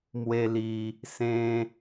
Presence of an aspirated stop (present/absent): absent